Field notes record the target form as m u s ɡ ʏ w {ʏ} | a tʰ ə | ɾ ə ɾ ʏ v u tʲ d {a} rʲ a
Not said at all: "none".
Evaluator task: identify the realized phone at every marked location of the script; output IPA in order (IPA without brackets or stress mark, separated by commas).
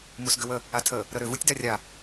ə, a